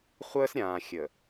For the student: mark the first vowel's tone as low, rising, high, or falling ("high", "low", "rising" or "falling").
high